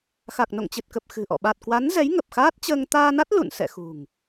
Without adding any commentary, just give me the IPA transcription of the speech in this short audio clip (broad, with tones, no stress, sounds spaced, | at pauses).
x a˨˩ k̚ n o̰˧˨ ŋ t͡ɕ ɨ˨˩ t̚ k ə˨˩ p̚ x ɨ̤˨˩ ʔ ɔ̰˧˨ ɓ a˨˩ t̚ k w a˨˦ n z ɛ˨˦ j ŋ ə˨˩ p̚ x aː˦˥ t̚ t͡ɕ əː˧ ŋ t̪ aː˧ n a˦˥ t̚ l ṵ˧˨ n s ɛ̰˧˨ x ṳ˨˩ ŋ